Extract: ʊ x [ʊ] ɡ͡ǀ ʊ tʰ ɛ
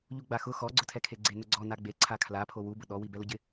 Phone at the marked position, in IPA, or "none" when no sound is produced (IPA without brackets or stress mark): ɔ